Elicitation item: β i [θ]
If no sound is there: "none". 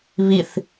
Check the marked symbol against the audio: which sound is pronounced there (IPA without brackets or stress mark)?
θ